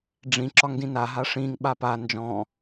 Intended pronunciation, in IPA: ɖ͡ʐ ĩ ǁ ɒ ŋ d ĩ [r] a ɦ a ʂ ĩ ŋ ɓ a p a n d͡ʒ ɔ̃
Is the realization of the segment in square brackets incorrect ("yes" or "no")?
yes